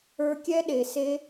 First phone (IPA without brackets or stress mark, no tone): ə˞